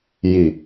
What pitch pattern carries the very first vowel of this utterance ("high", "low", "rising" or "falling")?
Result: low